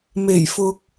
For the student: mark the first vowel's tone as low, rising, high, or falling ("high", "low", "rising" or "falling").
low